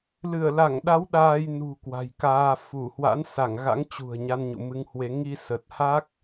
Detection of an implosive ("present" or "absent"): present